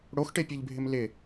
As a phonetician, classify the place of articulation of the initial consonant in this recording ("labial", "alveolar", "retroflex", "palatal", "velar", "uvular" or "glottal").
retroflex